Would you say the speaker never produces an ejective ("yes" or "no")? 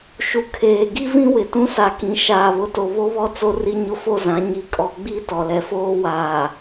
no